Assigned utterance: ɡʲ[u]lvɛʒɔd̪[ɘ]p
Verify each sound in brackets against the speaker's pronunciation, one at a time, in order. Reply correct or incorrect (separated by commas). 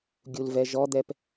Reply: correct, incorrect